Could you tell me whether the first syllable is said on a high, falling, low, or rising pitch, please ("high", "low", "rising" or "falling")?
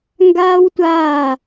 high